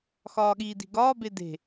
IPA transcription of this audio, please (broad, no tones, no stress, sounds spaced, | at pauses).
x ɒː ɠ iː d i̤ ɡ ɒː b e d e̤